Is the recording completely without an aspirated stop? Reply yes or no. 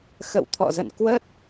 no